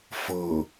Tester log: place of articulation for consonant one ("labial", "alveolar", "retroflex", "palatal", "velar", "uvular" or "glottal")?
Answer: labial